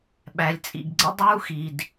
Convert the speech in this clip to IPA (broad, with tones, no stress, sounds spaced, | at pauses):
ɓ æ˩ lʲ t͡sʼ ḭ˩ ɡ ɡ͡ǀ ə̰˥ dˤ uː˥ x i˩ d